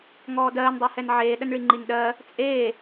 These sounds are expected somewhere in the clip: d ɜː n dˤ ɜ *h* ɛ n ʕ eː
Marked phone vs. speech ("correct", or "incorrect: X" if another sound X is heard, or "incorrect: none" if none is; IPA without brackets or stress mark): correct